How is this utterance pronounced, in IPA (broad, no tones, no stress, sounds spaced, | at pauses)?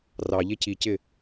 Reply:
r ɑ ʎ e c i c ɪ